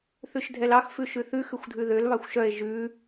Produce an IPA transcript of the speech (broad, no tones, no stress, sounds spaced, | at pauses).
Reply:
θ ʉ ʃ dʱ ɛ l ɑ x f ʉ ʃ ʉ θ ʉ x ʉ xʷ dʱ ʉ ð ø l β ɑ xʷ ʃ œ e̯ ʒ ʉ